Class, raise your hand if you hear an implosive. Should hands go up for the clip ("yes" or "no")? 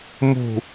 no